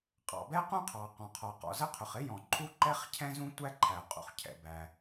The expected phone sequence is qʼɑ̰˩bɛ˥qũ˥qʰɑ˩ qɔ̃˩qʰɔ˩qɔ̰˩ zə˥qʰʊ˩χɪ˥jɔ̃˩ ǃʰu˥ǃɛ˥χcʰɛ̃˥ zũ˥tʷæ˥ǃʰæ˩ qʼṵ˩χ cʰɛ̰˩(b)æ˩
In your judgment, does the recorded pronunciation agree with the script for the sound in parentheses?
yes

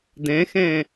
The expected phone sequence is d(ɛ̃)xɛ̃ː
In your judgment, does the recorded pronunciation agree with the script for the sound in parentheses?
yes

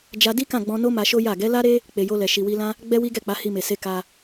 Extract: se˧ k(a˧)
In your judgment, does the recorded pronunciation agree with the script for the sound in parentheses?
yes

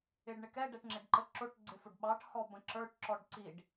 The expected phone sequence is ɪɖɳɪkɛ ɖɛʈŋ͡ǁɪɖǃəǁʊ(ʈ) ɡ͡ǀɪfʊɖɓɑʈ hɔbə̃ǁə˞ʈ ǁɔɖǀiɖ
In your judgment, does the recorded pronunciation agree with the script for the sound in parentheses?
yes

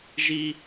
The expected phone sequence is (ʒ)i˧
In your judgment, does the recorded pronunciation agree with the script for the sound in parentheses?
yes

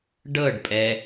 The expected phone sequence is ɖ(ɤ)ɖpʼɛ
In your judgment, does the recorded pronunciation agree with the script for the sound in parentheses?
yes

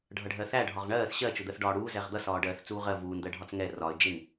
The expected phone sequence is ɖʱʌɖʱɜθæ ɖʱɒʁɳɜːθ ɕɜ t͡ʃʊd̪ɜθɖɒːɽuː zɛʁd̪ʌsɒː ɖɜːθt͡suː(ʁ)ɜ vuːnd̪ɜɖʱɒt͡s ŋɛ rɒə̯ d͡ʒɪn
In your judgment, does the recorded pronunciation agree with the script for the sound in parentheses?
yes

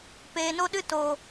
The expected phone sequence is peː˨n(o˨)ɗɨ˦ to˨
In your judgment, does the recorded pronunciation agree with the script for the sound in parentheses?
no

